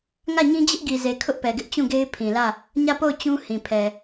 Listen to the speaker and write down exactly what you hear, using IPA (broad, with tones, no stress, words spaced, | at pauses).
ŋä˦˨ ɲĩ˦d͡ʑɪ˦ʔɡi˨ze˨ kʰʊ˦ʔpɛ˨ɡɪ˦ʔ t͡ɕũ˦˨ɡe˦ɪ̯ pʰĩ˨lä˦˨ | ɲä˦˨po˦˨ʊ̯ t͡ɕũ˦ hĩ˨pʰɛ˨